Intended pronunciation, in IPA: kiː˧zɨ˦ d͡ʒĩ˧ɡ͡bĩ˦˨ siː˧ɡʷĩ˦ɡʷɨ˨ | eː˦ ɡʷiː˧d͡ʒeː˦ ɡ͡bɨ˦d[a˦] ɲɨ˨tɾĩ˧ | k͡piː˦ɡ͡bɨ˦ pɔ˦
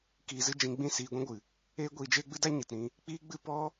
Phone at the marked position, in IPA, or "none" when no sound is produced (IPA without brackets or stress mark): a˦